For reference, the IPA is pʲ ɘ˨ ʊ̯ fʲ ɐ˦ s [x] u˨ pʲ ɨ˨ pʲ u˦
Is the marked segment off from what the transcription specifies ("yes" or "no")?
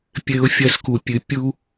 yes